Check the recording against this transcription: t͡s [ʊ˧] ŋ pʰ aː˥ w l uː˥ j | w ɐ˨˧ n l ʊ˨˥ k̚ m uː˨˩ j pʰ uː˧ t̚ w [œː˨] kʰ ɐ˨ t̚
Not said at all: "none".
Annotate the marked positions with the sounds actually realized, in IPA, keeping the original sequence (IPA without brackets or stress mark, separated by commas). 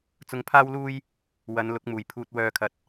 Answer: ʊ˧, œː˨